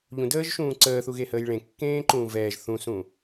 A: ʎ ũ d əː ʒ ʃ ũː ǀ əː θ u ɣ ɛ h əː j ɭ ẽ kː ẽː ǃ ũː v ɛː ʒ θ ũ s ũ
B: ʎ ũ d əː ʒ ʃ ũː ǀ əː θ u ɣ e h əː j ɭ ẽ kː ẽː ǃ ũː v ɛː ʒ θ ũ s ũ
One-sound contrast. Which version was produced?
B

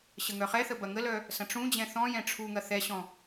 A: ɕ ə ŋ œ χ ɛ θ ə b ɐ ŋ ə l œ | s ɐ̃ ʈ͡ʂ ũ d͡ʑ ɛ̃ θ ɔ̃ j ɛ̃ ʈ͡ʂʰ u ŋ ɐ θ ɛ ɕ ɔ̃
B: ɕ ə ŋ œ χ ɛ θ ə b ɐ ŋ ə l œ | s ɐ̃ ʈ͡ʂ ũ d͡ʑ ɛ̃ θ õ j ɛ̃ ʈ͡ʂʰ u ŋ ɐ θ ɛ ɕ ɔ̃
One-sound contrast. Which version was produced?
A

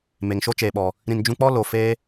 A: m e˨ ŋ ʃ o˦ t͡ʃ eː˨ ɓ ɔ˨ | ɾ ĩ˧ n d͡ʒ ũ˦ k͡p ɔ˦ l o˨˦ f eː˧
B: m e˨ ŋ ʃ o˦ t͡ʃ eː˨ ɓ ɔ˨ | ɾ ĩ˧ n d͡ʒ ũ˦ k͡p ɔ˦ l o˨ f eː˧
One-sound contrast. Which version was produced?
B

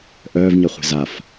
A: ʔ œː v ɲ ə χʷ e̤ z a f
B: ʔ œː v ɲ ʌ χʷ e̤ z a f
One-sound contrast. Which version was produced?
B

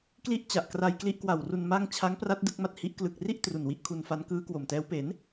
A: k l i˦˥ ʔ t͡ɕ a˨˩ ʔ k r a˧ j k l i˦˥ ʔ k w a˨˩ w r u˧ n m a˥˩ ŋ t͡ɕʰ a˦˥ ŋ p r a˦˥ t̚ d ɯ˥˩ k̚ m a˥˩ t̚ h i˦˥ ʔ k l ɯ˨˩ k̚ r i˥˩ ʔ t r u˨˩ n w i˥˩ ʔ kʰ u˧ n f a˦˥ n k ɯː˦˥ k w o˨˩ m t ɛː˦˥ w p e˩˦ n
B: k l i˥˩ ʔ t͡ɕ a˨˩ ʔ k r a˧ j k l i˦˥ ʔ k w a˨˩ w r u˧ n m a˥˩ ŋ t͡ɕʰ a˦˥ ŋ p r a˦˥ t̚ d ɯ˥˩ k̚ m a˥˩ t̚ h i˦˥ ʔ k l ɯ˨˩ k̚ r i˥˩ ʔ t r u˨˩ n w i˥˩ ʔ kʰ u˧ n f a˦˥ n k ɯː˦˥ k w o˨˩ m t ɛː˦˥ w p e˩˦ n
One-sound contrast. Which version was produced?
B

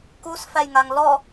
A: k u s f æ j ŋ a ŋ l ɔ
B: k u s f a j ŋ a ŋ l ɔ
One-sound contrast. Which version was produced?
A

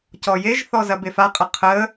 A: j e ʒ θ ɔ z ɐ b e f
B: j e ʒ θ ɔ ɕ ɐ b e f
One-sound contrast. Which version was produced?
A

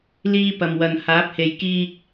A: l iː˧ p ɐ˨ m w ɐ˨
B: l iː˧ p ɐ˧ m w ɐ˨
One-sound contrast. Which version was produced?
A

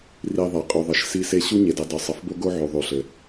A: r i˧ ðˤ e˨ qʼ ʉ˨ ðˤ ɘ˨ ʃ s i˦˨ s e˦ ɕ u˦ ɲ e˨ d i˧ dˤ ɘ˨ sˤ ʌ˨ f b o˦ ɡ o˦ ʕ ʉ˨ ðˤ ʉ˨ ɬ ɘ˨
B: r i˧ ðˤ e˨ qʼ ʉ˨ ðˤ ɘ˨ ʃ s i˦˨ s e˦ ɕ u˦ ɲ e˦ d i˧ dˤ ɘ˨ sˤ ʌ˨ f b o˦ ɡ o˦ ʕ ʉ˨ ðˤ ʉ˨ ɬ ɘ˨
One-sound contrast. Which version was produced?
A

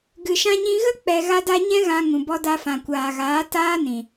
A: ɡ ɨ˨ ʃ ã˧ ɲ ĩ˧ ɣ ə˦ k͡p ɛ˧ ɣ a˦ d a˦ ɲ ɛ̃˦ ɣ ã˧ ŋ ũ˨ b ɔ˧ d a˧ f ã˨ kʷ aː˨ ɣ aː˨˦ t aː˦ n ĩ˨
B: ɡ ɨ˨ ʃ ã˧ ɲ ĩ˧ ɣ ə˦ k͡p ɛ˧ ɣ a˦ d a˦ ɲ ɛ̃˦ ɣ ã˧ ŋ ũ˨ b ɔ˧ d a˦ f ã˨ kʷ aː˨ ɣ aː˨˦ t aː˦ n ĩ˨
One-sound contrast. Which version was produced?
A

